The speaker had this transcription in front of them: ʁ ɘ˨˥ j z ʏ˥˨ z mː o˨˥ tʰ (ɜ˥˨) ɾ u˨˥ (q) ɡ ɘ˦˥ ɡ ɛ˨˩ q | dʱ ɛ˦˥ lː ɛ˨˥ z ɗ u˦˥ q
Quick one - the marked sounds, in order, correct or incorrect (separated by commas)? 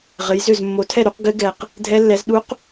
incorrect, correct